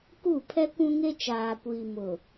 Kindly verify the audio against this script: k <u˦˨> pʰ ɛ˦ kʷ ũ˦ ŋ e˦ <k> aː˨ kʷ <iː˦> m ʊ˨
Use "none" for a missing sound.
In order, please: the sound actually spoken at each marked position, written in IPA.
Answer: u˦˨, t͡ʃ, iː˨

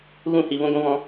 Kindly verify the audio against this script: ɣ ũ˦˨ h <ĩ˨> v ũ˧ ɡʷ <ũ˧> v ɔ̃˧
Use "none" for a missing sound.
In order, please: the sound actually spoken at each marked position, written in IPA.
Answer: i˨, ũ˧

